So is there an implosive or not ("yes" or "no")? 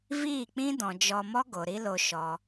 no